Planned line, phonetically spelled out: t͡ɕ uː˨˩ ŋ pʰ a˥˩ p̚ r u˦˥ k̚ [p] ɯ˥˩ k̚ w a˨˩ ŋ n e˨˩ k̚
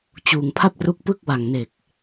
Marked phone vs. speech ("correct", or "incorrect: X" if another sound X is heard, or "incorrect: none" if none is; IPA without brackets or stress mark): correct